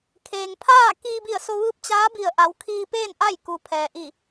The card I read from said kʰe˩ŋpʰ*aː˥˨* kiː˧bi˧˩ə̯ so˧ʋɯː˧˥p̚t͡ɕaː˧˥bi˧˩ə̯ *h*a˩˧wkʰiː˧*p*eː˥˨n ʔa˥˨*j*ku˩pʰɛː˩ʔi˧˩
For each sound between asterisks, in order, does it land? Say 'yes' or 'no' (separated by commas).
yes, no, yes, yes